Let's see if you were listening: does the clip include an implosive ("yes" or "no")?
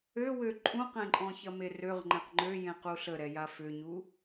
no